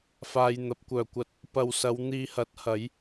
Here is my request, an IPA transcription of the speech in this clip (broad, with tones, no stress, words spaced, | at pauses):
faː˧jn̪ɐ˨˥p̚ kʷœː˨˩kʷɐ˧t̚ | pɐ˨wsɐ˨˧w n̪iː˧hɐ˨˥t̚ hɐ˨˥j